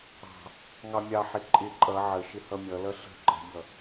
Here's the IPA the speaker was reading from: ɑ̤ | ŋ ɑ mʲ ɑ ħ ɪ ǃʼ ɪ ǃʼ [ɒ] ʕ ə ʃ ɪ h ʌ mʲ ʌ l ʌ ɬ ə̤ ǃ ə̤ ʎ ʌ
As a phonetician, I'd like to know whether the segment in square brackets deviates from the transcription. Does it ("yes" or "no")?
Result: yes